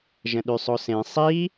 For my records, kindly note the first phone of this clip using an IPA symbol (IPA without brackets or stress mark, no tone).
ʒ